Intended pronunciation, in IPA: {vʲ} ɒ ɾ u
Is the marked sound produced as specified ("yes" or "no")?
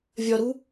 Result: yes